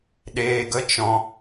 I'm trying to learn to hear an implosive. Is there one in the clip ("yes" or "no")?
yes